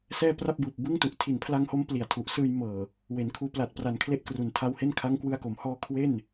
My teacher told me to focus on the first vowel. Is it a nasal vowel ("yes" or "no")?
no